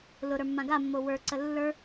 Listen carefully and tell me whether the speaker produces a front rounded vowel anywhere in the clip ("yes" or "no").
no